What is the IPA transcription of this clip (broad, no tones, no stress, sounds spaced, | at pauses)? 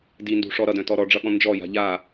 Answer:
d i n d ṳ ʂ ɔ ɾ ʌ d œ̃ t ɔ ɾ ɔ ɖ͡ʐ ʌ ɠ ɔ̃ n d͡ʒ ɔ j a̤ ʎ a